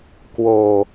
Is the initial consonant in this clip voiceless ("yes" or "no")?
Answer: yes